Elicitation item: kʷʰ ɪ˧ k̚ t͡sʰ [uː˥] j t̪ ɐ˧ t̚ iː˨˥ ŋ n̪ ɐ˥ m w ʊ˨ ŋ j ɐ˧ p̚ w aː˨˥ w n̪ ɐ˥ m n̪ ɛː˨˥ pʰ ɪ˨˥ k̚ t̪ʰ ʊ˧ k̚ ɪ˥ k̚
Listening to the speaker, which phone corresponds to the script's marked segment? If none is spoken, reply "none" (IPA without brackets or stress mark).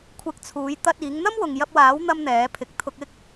uː˨˥